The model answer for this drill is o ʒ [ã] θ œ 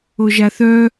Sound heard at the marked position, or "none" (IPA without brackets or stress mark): a